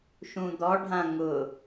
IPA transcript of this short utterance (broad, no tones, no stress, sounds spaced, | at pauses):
ʃ ũ d̪ ɔ ɖʱ ã ŋ ʊ